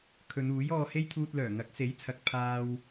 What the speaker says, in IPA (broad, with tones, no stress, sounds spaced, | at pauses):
kʰ ɵ˨˧ n uː˨˥ j ɔː˧ h e˥ j t̪ʰ uː˧ t̚ l œː˨˩ ŋ ɐ˨˥ k̚ s e˨˥ j t͡sʰ ɐ˨ k̚ pʰ aː˧ w